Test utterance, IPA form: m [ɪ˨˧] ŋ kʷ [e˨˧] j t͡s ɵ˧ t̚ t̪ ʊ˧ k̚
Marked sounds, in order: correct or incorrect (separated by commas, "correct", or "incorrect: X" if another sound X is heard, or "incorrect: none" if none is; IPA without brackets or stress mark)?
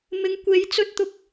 correct, correct